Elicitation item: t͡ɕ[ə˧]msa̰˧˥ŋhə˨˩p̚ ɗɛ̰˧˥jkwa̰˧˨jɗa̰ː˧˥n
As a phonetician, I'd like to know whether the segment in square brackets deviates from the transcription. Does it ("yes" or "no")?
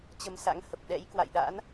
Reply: no